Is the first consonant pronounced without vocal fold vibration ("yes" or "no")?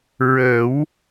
no